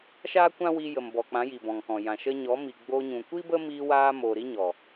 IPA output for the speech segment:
ʃaː˦kʷã˦wi˧ jə˨mbɔ˨k͡pã˨˦ ji˨bɔ̃˨ŋkɔ̃˨jã˨ ʃə˧ɲɔ˨˦ mi˨ɡ͡boː˧ɲũ˨ kʷi˦bə˦miː˧waː˧ moː˨ ɾi˦ɲɔ˨

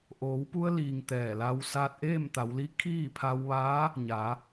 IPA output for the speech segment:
ʔoː˩˧wpu˧ə̯liː˩ŋ t̪ɛː˧˩la˧w saː˧t̚ʔeː˥˨mt̪a˩˧wli˧˥ kʰiː˥˨pʰa˧wʋaː˧˥ | ɲaː˩˧

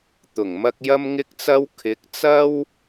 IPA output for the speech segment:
t̪ʊ˨˩ŋmɐ˥k̚ jɐ˥mŋɪ˥k̚t͡sɐ˥w kʰɪ˨˥k̚t͡sɐ˥w

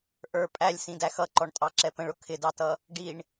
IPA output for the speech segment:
ʔə˞ pʼælʲsĩdæ xʌǃɔɳtʼɑǁɛ pə̃ɭʊ kʰɪdɑtʌ | ɖiɳ

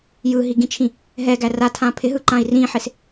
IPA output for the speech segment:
jɯɦiɡĩt͡ʃʰĩ | ɦɛɡæ ratʰã pʰɪɦɯǃãi̯ rĩħɪs

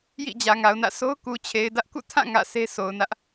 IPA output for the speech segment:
jḭ˦˨d͡ʑä˨ŋa˨ʊ̯nä̰˦˨ sʰo˦ʊ̯ku˨t͡ɕʰe˨ɪ̯dä˦ʔ kṵ˦˨tʰã˦˨ ŋä̰˦˨ sʰe˦sʰo˨ʊ̯nä˦ʔ

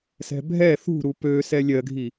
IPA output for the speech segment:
sɛ̤bʱɛ θṳɾu pøsɛ lʲɜɡʱi

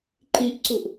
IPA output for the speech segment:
ǃiʔǀuʔ

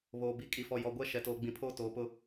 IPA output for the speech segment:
βoː˨bi˨ kʼi˨fɔ˨ jɔ˨ɡʷɛ˦ ʃɛ˨toː˨ ɡ͡bĩ˨pʰoː˦ toː˨pʊ˦

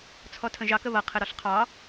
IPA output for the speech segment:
t͡sʰɔtʰə̃ʒɑk əβʌ qʰɘɾɔɬqʰɑ

